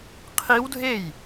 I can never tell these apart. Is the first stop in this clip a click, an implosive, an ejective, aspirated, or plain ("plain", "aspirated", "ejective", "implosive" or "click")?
aspirated